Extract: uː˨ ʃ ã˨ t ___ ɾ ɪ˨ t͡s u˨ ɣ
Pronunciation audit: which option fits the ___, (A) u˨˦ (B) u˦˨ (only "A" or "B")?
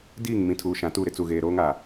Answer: B